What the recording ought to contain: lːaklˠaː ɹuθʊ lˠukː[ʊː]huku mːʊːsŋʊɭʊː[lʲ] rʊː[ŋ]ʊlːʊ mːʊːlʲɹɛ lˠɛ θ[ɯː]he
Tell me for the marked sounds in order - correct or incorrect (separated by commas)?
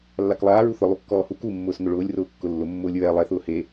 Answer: incorrect, correct, incorrect, incorrect